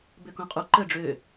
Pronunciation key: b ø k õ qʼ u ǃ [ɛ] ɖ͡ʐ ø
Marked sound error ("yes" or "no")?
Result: yes